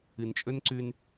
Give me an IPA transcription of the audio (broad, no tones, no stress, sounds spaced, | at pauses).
ɨ n t͡ʃʼ ɵ n ǀ ʉ n